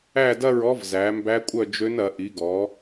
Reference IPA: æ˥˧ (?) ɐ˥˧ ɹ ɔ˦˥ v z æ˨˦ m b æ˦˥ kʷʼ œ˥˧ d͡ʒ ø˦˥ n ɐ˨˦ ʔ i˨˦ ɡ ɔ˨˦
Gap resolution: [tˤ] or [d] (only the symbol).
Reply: d